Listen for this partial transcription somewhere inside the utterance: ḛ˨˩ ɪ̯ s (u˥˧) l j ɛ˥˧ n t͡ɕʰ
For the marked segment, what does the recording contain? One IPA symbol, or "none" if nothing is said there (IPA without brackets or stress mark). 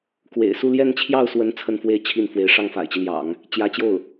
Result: u˥˧